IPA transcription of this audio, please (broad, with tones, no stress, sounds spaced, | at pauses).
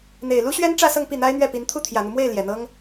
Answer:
n̪ e˨˩ ɪ̯ l u˥ ɕ ɥ ɛ˥ n ʈ͡ʂ ä˥˧ s ɤ˥˧ ŋ p i˥˩ n̪ a˥ ɪ̯ n̪ ɥ ɛ˥˩ p i˧˥ n t̪ʰ u˥˩ t̪ʰ j ä˨˩ n̪ u˦ m w e˥˩ ɪ̯ l j ɛ˨˩ n̪ ɤ˥ ŋ